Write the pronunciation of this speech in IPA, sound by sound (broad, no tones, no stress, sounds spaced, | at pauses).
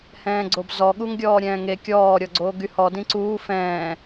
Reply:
h ɛ̃ː ɡ͡ǀ o b z ɔ ɠ u ŋ ɡʲ ɔː ɾʲ ɛ̃ː ŋ e kʲ ɔː ɾʲ ɔ ɡ͡ǀ oː ɡ y h ɔ d ĩ ǀ uː f ɛ̃ː